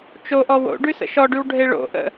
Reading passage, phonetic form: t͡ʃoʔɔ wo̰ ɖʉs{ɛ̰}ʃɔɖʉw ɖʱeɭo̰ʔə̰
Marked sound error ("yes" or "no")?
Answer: yes